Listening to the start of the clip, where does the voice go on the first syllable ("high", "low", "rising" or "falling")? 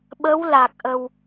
rising